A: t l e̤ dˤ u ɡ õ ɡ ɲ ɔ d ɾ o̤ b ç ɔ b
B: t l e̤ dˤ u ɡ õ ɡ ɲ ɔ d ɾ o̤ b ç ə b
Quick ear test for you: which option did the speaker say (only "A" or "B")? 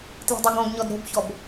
A